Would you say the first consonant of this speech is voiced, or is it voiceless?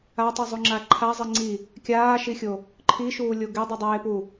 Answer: voiceless